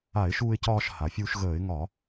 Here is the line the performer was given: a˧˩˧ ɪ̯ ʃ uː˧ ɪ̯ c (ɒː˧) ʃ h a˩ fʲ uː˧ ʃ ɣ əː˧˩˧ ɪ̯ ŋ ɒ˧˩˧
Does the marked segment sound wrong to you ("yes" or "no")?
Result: no